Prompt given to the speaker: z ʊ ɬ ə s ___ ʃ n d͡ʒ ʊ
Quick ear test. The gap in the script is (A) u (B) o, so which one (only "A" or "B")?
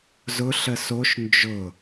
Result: B